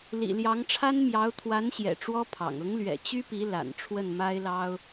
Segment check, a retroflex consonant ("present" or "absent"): present